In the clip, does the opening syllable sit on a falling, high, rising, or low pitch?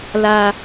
low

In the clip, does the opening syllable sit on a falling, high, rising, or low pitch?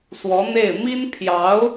rising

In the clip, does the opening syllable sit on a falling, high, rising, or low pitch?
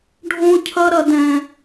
high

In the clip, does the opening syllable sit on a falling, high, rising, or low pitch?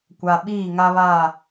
low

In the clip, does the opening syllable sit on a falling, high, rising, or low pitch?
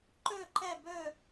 falling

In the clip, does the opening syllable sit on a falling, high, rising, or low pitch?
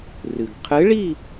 low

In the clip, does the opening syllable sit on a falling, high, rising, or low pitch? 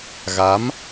rising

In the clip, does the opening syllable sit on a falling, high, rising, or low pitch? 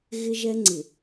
high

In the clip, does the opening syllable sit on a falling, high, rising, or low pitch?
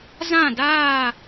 falling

